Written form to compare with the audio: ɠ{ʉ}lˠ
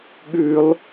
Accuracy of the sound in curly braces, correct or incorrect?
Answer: correct